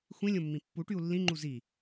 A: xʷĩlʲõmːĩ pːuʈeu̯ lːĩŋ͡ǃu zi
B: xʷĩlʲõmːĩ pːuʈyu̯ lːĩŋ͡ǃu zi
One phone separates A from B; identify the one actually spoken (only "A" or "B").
B